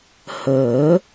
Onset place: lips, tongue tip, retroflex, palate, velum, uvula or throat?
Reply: throat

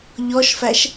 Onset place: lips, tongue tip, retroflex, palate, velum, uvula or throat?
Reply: palate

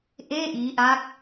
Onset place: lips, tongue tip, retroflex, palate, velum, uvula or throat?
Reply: throat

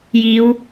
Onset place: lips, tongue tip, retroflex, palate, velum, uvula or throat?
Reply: palate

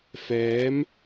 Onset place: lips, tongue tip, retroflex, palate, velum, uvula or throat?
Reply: lips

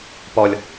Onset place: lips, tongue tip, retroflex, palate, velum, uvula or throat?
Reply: lips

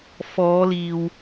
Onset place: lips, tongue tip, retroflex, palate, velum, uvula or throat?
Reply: lips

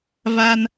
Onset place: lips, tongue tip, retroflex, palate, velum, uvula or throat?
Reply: lips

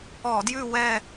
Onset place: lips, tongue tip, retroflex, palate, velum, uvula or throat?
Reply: tongue tip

